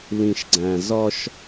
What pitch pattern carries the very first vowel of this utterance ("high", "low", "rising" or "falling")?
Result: low